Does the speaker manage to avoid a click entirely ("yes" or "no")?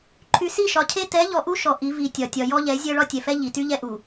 no